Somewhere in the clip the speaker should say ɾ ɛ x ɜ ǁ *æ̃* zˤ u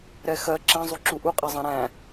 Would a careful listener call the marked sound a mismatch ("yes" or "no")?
yes